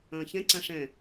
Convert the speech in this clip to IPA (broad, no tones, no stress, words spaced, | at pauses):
ɐ̃ːçɛ̃ ǀãʂɛ̃